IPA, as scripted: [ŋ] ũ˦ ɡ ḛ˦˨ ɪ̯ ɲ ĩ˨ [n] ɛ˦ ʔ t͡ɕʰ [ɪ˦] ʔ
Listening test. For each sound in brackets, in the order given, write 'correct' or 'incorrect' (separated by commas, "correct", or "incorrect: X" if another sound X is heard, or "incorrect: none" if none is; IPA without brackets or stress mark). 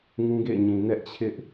correct, correct, correct